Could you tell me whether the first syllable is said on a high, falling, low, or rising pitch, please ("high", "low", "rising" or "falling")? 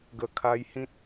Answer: low